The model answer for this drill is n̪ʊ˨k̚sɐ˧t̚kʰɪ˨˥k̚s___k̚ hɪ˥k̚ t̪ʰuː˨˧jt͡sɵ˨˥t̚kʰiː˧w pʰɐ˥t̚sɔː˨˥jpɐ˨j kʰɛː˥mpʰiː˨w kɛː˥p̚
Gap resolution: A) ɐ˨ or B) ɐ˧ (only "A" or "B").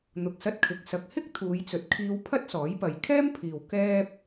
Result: A